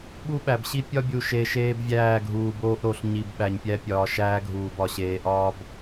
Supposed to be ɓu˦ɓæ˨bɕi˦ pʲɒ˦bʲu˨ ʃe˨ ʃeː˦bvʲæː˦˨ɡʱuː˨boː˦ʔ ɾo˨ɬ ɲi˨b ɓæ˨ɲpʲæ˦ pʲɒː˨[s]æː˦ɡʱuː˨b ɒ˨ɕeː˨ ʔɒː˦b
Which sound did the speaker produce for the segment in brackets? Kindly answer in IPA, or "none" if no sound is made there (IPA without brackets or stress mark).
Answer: ʃ